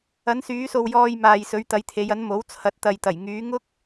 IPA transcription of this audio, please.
ɐ˨˧ n s yː˨˧ s o˨ w j ɔː˧ j m aː˨ j s ɵ˨˧ ɥ t̪ ɐ˨˧ j t̪ʰ e˨˧ j ɐ˨˥ n m o˨˥ w t͡sʰ ɐ˨˥ t̚ t̪ ɐ˨ j t̪ ɐ˨˩ j ŋ yː˨˧ ŋ ʊ˥ k̚

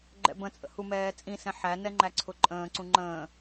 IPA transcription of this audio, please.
ɡ͡ǃ ɛ̰ b ə̃ t͡sʼ ə̰ h u m ɛː t͡sʼ ĩ s ɛ̃ ħ æ n ɛ ŋ͡ǃ æ ǀʰ ʊ ǃʼ ə̃ː ǀ ũ ŋ͡ǃ ə̃ː

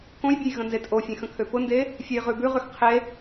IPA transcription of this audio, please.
k õ j bʲ e j ɣ ə̃ n z e tʼ o fʲ ẽ x ə̃ kʰ ø p ʊ n d e | fʲ ø j ʁ ʉ b ʉ ʁ ʉ x qʰ e

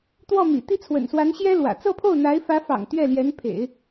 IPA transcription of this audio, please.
t̪ w ɔ˥˩ m ḭ˨˩ t̪ i˥˩ t͡sʰ w ə̰˨˩ n s w a˧˥ n ɕ j ɛ˥ l w ä̰˨˩ t͡s ɤ˥˧ pʰ o˥˩ ʊ̯ n̪ a˧˥ ɪ̯ f ä˧˥ f ɑ̰˨˩ ŋ t̪ ɥ ɛ˥˩ l j ɛ˧˥ n pʰ ḛ˨˩˦ ɪ̯

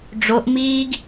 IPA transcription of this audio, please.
ɖ͡ʐ o ʔ m iː ɡ

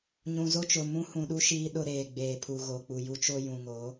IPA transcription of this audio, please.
ɲ ũ˨ z o˦ t͡ʃ ʊ˨ m ũ˦ h ũ˨ ɗ u˦ ʃ iː˦ ɗ ʊ˦ ɾ eː˨ ɡ͡b eː˨ pʰ u˨ ɣ o˨ k͡p u˨ j u˦ t͡ʃ o˦ j ũ˨ ŋ o˨˦

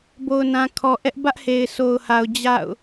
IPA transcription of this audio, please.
b o˨ ʊ̯ n ã˨ kʰ ɔ˨ ʔ ɛ˦ ʔ b ä˦ ʔ h e˨ ɪ̯ s o˨ ʊ̯ h a˨ ʊ̯ d͡ʑ a̰˦˨ ʊ̯

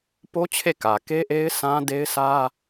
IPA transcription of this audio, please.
p o˦ t͡ɕʰ e˦˨ k ä˨ k e˦ ʔ e˦ ɪ̯ sʰ ã˦ d e˦ ɪ̯ sʰ ä˦

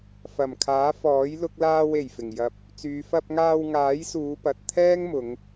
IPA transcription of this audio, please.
f ɐ˨˩ m kʰ aː˨˥ f ɔː˨˥ j l ʊ˧ k̚ l aː˧ w e˨˩ j f ɪ˨˩ ŋ j ɐ˧ p̚ | t͡s yː˨˧ f ɐ˧ p̚ ŋ aː˧ w ŋ aː˨˥ j s uː˨˧ p ɐ˨ t̚ t̪ʰ ɛː˥ ŋ m ʊ˨˧ ŋ

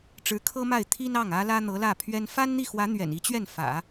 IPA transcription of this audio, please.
ʈ͡ʂ ɻ̩˧˥ kʰ ɤ˥ m a˥˩ ɪ̯ t̪ʰ i˥ n ɑ˥˩ ŋ ä˥ l ä˥ n̪ ɤ˧˥ l ä˥˩ pʰ ɥ ɛ˥ n f a˥ n n̪ i˥˩ x w ä˧˥ n̪ ɥ ɛ̰˨˩ n i˧˥ t͡ɕ ɥ ɛ˥˩ n f ä̰˨˩˦

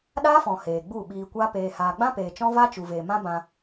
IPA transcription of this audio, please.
ɗ aː˦ f ɔ̃˨ h eː˨ ɡ͡b u˦˨ ɓ iː˧ kʷ a˦ p eː˧ h aː˧ ɡ͡b ã˦ p eː˨ t͡ʃ ɔ̃˦ v a˦ t͡ʃ u˨ v eː˨ m ã˦ b ã˧

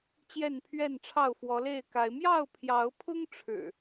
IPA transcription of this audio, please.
t͡ɕ j ɛ˥˨ n pʰ ɥ ɛ˥˨ n ʈ͡ʂʰ ɑ˥˨ ʊ̯ f w ɔ˨˦ l e˥˨ ɪ̯ k a˨˦ ɪ̯ m j ɑ˥˨ ʊ̯ pʰ j ɑ˨˦ ʊ̯ pʰ ʊ˦ ŋ ʈ͡ʂʰ ɻ̩˨˩

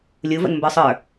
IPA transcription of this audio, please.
lʲ u v ə̰ n m b ə˞ sˤ ə˞

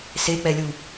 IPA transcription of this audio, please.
s e k͡p ɛ lʲ u

